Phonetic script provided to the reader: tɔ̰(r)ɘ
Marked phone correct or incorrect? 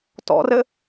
correct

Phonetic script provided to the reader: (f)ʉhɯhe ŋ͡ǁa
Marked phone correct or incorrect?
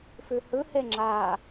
correct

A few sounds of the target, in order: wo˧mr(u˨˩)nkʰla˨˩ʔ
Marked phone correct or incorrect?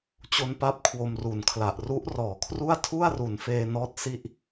correct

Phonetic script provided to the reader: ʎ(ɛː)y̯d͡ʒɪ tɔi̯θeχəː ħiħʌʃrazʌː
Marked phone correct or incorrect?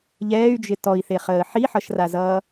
correct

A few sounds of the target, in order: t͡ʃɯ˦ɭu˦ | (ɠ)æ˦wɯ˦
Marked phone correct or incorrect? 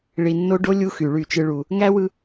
incorrect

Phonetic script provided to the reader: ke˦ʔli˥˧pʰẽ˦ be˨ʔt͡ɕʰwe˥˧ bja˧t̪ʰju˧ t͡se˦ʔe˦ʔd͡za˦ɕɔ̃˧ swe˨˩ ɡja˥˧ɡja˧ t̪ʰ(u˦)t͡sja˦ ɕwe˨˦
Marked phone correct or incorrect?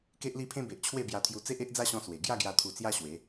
incorrect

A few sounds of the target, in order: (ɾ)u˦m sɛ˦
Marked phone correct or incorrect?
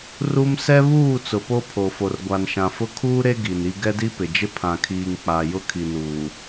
incorrect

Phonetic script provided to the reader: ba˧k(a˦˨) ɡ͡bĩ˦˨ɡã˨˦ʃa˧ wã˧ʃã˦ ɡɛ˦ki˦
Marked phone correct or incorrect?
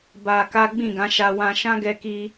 incorrect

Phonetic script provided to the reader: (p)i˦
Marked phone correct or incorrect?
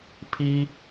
incorrect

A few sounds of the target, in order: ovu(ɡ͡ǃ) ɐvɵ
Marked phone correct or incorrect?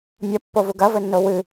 incorrect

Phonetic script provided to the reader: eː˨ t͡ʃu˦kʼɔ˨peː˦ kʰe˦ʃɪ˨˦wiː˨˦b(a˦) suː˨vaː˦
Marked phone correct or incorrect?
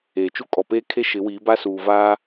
correct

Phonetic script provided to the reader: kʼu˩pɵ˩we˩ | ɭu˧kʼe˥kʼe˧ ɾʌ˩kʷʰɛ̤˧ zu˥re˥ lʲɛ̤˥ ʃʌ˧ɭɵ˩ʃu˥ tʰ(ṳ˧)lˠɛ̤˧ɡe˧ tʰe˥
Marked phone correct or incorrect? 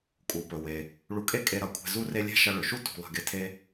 correct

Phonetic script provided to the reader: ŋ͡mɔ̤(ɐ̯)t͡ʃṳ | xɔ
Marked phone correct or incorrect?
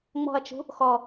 correct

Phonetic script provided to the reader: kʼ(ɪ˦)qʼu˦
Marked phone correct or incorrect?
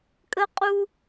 incorrect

